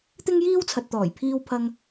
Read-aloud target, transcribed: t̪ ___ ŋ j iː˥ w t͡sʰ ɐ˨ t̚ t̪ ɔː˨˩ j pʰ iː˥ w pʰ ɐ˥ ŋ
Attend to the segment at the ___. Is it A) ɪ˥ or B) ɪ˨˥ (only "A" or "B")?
A